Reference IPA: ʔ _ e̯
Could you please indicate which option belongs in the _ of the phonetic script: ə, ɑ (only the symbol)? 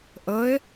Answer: ə